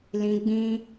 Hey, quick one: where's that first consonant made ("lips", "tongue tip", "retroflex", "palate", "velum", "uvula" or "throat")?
tongue tip